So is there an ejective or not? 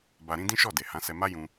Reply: no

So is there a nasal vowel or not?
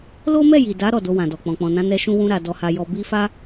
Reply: yes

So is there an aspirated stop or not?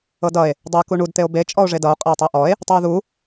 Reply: no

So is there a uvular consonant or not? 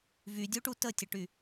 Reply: no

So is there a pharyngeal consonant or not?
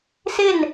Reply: no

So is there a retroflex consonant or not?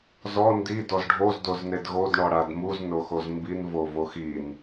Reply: yes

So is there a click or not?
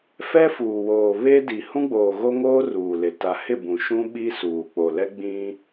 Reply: no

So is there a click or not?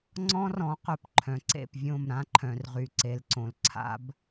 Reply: yes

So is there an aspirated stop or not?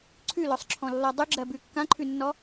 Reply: yes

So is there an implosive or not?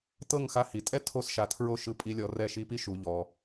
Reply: no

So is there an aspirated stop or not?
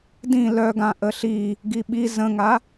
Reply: no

